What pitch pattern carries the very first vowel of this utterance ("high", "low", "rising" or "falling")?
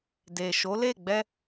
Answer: low